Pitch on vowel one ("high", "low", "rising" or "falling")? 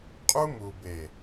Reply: high